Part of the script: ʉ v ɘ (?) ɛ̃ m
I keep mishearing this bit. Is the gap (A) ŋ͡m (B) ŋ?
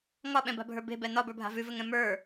B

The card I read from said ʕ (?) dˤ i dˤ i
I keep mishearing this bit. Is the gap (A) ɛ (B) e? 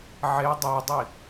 B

